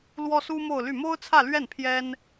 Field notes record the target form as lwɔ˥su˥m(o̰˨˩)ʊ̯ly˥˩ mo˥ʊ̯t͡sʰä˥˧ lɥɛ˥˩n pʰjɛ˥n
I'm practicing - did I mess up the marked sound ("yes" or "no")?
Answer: yes